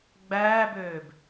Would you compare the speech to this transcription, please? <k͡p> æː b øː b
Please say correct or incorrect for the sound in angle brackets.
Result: incorrect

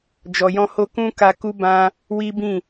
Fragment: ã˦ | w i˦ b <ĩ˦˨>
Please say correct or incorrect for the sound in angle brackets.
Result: correct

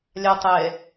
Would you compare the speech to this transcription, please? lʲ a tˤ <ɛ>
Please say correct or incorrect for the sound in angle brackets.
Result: correct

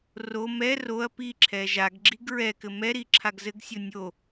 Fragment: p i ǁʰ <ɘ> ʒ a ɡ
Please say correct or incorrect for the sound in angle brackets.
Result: incorrect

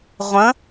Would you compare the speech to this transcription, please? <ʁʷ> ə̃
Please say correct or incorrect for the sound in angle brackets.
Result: correct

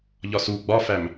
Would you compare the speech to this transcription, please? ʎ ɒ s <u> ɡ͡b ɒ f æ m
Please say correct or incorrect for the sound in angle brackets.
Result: correct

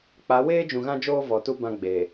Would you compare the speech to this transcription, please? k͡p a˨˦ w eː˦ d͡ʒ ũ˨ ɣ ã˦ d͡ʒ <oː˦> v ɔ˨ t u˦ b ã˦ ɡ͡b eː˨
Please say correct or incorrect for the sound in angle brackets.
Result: correct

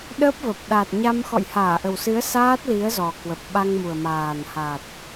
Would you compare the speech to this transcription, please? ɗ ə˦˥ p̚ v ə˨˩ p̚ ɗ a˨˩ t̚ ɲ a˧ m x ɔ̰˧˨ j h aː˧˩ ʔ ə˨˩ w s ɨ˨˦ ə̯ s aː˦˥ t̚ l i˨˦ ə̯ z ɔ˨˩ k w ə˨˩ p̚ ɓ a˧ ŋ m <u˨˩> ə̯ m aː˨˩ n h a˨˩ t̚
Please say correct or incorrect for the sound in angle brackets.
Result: correct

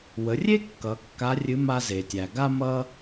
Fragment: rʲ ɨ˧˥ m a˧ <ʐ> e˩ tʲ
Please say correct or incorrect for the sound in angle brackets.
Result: incorrect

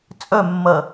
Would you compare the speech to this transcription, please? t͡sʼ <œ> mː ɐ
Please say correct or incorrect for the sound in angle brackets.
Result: correct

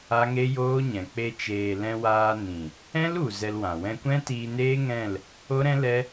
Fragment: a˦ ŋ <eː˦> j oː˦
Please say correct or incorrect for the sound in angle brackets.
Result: incorrect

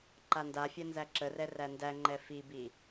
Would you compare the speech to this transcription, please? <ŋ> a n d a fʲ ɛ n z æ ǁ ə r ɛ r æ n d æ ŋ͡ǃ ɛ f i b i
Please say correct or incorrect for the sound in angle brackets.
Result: incorrect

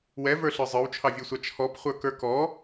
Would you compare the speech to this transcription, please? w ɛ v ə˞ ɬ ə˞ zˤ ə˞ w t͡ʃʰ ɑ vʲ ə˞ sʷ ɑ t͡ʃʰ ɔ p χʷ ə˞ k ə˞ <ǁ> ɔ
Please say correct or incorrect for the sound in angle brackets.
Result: incorrect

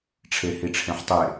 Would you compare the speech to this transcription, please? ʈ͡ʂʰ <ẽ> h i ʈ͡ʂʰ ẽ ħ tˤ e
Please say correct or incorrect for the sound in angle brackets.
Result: incorrect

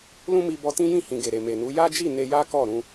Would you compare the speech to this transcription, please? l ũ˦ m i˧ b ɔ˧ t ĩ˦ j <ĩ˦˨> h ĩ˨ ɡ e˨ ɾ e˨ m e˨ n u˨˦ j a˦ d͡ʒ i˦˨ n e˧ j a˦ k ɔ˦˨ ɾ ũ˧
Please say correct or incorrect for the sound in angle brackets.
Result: correct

